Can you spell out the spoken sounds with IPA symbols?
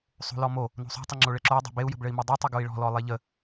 sˤ o̤ l ɔ m o | n o̤ sˤ o̤ tˤ ə ŋ͡ǁ o ɭ ɘ ǁ o u̯ dˤ o̤ b e u̯ j ə̤ b ɭ ɘ i̯ m o dˤ u tˤ ə ɡ o i̯ ɭ ɔ̤ l ɔ lˠ e ʎ ə

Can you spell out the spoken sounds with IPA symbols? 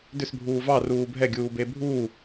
d ʏ s bʱ uː v ɑ r uː bʱ ɛ ɡʲ uː b e bʱ uː

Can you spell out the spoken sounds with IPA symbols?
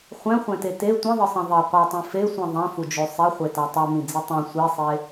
χʷ ɛ̃ χʷ ɛ̃ t e t e tʷ ĩ ðˤ ɯ sˤ ĩ ðˤ i qʷ ɯ tˤ ĩ f e sʷ ĩ ðˤ ɛ̃ f u d͡ʒ o sˤ e χʷ e t a tˤ ɛ m ĩ d͡z i tˤ ɛ̃ sʷ e sˤ e

